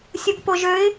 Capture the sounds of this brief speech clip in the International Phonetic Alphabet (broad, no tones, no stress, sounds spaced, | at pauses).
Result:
sʲ u ɡ p o ʒ ø ɪ̯